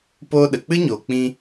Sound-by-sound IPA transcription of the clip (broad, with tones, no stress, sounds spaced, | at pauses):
p oː˦ ɗ ə˨ k͡p ɨ˦ ɲ oː˨ k͡p ĩ˧